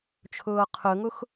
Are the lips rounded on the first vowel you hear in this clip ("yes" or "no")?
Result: yes